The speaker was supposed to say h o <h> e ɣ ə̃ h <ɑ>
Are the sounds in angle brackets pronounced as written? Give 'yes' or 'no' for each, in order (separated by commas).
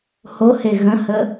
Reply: yes, no